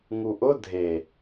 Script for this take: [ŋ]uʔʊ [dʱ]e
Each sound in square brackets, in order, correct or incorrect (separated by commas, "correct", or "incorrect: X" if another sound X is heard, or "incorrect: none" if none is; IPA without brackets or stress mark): correct, correct